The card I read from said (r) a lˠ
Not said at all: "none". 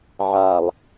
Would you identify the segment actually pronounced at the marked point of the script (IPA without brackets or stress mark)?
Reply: ʕ